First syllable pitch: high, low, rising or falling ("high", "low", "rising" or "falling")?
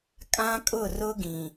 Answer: high